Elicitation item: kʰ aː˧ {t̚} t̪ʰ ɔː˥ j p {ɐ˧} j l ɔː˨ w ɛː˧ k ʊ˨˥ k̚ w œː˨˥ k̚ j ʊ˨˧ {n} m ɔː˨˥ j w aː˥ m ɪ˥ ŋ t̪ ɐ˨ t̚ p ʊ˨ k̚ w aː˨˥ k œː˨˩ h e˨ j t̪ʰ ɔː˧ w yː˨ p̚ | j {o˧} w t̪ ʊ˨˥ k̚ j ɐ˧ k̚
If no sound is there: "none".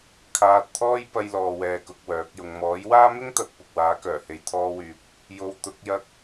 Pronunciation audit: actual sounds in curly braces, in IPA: t̚, ɐ˧, ŋ, o˧

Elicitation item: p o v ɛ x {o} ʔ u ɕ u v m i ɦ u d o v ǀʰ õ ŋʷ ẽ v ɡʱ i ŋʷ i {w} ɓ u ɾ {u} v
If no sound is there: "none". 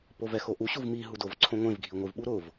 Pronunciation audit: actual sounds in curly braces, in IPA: o, v, ʊ

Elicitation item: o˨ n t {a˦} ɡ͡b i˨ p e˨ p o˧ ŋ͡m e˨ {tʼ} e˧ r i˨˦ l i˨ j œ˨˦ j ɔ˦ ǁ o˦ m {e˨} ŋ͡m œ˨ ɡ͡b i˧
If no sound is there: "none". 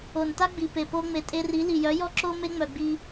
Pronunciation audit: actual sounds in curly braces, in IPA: a˦, tʼ, e˦

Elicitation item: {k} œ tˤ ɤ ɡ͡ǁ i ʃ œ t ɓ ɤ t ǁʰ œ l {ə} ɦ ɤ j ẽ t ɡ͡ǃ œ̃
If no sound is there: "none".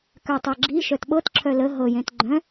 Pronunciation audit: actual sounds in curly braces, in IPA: k, ə

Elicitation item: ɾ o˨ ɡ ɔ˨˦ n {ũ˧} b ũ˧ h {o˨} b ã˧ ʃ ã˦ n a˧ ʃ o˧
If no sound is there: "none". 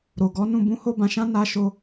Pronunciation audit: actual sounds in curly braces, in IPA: ũ˧, o˦

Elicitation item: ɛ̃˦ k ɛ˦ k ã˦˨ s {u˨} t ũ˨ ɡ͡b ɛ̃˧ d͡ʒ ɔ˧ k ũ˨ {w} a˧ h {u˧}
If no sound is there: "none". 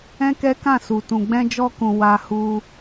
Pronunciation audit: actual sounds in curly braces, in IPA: u˨, w, u˧

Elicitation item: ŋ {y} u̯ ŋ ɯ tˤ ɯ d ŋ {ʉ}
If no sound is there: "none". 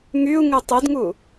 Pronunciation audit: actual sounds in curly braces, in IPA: y, u

